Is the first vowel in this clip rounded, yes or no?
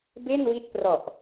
no